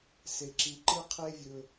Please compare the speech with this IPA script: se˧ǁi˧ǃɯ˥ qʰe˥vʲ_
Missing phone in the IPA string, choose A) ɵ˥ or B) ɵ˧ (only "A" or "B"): B